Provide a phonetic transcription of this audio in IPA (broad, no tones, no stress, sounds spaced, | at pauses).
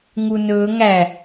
ŋ u n ɵː ŋ æ